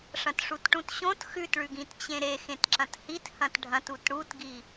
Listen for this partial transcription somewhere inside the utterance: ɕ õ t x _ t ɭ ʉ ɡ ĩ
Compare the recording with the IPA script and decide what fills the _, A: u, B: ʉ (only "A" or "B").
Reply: B